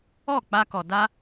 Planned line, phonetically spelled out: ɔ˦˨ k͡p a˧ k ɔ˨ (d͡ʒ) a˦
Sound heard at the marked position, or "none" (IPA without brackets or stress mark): d